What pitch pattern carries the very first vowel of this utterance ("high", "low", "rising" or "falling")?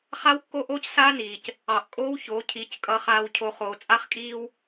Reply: high